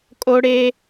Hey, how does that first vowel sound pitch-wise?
high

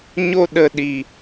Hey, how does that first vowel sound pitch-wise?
high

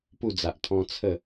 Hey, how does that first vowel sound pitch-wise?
falling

